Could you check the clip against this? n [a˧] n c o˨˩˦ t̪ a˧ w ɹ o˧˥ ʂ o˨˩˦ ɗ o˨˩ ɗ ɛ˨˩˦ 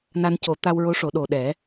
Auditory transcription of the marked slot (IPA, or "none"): a˧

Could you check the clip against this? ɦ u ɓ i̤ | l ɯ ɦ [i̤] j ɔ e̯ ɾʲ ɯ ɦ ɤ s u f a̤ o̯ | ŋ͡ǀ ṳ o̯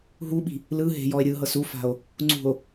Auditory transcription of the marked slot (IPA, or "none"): e̤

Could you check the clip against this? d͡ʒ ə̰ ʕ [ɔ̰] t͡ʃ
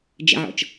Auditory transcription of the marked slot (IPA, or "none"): ɔ̰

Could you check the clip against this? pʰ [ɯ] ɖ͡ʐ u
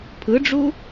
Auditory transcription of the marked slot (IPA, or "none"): ɯ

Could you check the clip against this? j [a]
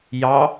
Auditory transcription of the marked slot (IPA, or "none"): ɑ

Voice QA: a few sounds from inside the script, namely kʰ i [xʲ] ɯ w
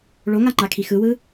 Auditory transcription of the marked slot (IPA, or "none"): x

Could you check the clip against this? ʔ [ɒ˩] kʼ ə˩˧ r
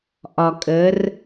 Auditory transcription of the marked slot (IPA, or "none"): ɒ˩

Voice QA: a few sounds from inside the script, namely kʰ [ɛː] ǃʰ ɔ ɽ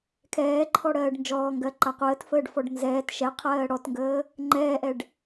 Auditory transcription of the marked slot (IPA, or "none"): ɛː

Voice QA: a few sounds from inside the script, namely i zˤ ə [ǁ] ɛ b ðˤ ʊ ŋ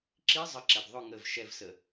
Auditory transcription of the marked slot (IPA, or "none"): ǁ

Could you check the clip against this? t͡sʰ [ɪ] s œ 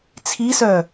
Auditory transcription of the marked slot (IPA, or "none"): i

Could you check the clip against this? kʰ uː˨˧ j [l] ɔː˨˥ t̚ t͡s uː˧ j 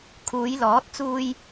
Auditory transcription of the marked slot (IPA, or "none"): l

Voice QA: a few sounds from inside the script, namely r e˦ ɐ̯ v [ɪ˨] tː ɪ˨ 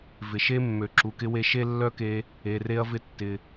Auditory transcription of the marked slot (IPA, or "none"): ɪ˦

